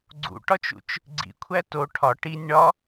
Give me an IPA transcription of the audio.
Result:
ɡ͡ǀ ṵ ʈ ɒ t͡ʃ ṵ t͡ʃ | ɡ͡ǀ ḭ kʷʰ æ t o ʈʰ ɒ ʈ i nʲ ɳ ɒ

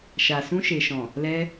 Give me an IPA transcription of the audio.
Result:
ʃ a˨ s ũ˧ ʃ e˨ ʃ ɔ̃˨ | l ɛ˧

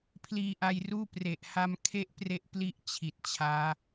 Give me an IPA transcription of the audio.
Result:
pʰ l iː˧ ʔ a˧ j r uː˥˩ p r e˨˩ ʔ h a˦˥ m kʰ e˥˩ ʔ p r e˦˥ ʔ p l i˦˥ ʔ t͡ɕʰ i˨˩ t̚ t͡ɕʰ aː˦˥

